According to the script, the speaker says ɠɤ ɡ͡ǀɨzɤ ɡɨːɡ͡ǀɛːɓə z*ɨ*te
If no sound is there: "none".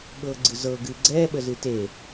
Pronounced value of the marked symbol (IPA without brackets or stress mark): ɨ